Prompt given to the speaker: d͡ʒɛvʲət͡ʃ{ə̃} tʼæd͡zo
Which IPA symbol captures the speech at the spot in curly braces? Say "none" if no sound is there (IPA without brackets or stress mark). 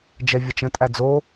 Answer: ə̃